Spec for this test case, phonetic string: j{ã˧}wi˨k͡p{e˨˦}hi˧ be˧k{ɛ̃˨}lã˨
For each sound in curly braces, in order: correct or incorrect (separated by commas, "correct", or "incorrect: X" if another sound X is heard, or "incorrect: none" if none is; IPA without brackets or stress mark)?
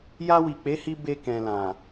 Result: incorrect: a˧, correct, correct